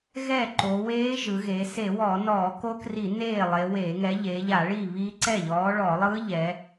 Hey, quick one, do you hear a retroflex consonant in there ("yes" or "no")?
yes